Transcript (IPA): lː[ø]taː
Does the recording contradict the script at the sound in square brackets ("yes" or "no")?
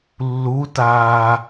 yes